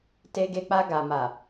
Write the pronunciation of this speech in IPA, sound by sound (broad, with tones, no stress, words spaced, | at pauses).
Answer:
te˧ɡe˧k͡pa˧ ɡa˨ma˨